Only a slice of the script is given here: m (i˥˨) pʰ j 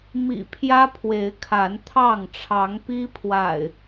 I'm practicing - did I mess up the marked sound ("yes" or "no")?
yes